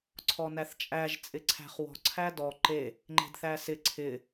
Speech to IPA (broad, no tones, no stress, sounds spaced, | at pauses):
ǀʰ ɔ n æ θ t͡ʃʼ æ ʒ t͡sʼ ɪ ǀʰ æ̤ χ w ɔ̤ ǀʰ æ d ɔ ǃ e | ŋ͡ǃ e̤ d θ æ s ɪ ǀʰ ɪ